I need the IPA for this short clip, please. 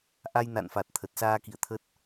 ʔ a˧ j n a̰˧˨ n f a˨˩ t̚ t̪ʰ ə˨˩ t̚ s aː˧ k ḭ˧˨ ə̯ t̪ʰ ə˦˥ t̚

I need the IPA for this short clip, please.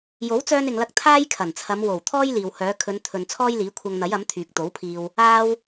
j o˨˥ w t͡s œː˧ n ɪ˨ ŋ l ɐ˧ k̚ t̪ʰ aː˥ j kʰ ɐ˨˩ n t͡sʰ ɐ˨˧ m w o˨˩ w t̪ʰ ɔː˥ j l iː˨ w h œː˨˧ kʰ ɵ˨˧ n t̪ʰ ɵ˨ n t͡sʰ ɔː˥ j l iː˨˥ kʷʰ ɐ˧ ŋ n̪ ɐ˨˥ j ɐ˨˥ m t̪ʰ yː˨ k̚ t̪ o˨˥ w pʰ iː˧ w | aː˥ w

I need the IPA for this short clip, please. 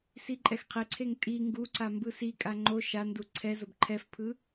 s i ǃʼ ɛ x qʰ e ǀʰ e ŋ tʼ i ŋ ɡ u ǀ a m b ɯ s i kʼ a ŋ͡ǃ o ʃ a n d u ǀʰ ɛ z o b ǃʰ ɛ f pʰ ɯ

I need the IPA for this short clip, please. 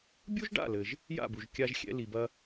bʲ u˥ ʒ ɖ a̰˥˩ l ɘ˩ ʒ | j a̰˥˩ b u˩ ʒ kʲ a˧ ʒ xʲ ɛ̰˧ l i˩ b ɐ˧

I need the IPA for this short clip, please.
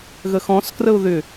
ɣ ə x ɔ̃ s k r ə ʊ̯ ð ʏ

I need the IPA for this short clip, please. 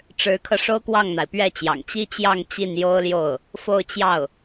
ʈ͡ʂ ɻ̩˧˥ kʰ ɤ˧ ʂ o˥ ʊ̯ k w ɑ˥˩ ŋ n̪ a˩ ɪ̯ p ɥ ɛ˥˩ t͡ɕ j ɑ̰˨˩ ŋ t͡ɕ i˥ t͡ɕ j ɑ˥˧ ŋ t͡ɕ i˥˩ n j o˥ ʊ̯ l j o˥˩ ʊ̯ | f o˥˧ ʊ̯ t͡ɕ j ɑ˥˩ ʊ̯

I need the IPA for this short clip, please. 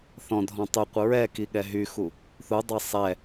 θ ɔ̃ dʱ ɔ̃ tˤ y qʷ ə ɹ ɛ k i ɠ ɛ ɦ y x u | θ u dˤ ɛ sˤ ɛ

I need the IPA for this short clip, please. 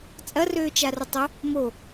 t͡sʼ ɐ r øː t͡ʃ a r ə tˤ ʊ | m o

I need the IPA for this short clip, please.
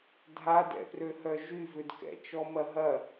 dʱ a d ɛ̰ p r ø h œ ʒ y v ʏ d k ɛ̰ t͡ʃ ɔ m ɐ ɦ ɐ

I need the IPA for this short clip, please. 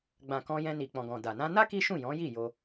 ɡ͡b ã˨ k ɔ̃˧ j ɛ̃˧ n i˨ k͡p ɔ̃˨ ɡ ɔ̃˨ d a˨ n ã˧ n a˦ k i˦ ʃ ũ˦˨ j ɔ̃˨˦ j i˦˨ j o˧

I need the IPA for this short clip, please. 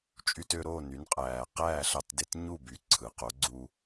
t͡ʃʼ y˧ t ø˧ ɾ oː˥˩ n y˩˥ n qʼ æː˩ q æː˥˩ ɬ ɑ˧ t d e˧ t ɲ u˥˩ b y˩˥ ǀʰ ɯ˩ q o˩˥ ɡ͡ǀ u˧

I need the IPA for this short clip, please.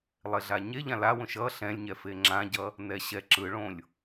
lˠ e ɮ a ɲ e ʎ ã l a w õ ʃ ʌ ɬ ɛ̃ lʲ ɲ ɛ f e ŋ͡ǁ ã ɟ ʌ | n ɛ ɕ ɛ ǁ ɯ ɭ õ lʲ

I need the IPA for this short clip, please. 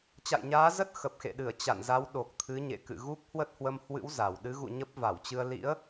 t͡ɕ a̰˧˨ j ɲ aː˨˦ z ə˦˥ t̚ x ə˨˩ p̚ x ḛ˧˨ ɗ ɨ˧˩ ə̯ t͡ɕ a̰˧˨ n z a˨˦ w ɗ o˨˩ k̚ t̪ʰ ɨ˨˦ ɲ ḛ˧˨ k ɨ̰˧˨ ɣ u˦˥ k̚ h w ə˦˥ t̚ h w ə˧ m h w ɨ̰˧˥ w z a˨˩ w ɗ ɨ˨˦ ɣ ṵ˧˨ ɲ ə˦˥ p̚ v a˧˩ w t͡ɕ ɨ˧ ə̯ l ḭ˧˥ ə̯

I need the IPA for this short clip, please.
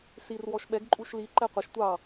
s i r w ɔ ʃ ɓ ɛ ɡ ǃʼ u ʃ l i ǃ ɛ qʷ ə ʃ tʷ ɑ

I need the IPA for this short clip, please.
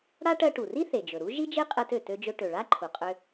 ɽ a˥ ʈ ɜ˧ ʈ u˩ r i˥ θ e˩ d͡ʒ ɵ˩ ɾ u˥ ʒ i˥ d͡ʒ e˥ qʼ ɛ˧ t ø˩ t ø˧ d͡ʒ ɵ˧ ʈ ø˩ ɭ a˥ ǃʰ u˩ qʼ ø˧

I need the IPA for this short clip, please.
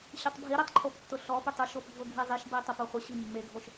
ɕ ə tˤ bʱ i ɾ ɛ tˤ ǃʰ o p tː ʊ ɬ ɔ p ʏ tˤ ʊ ʃ o p ɡʱ ʊ ɡʱ i zˤ i ʃ b i tˤ o p o χʷ ə ɕ i mː e ɡʱ o ʃ

